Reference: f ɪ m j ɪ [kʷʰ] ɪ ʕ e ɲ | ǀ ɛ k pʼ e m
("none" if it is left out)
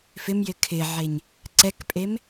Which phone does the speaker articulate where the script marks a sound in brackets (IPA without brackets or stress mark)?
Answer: kʰ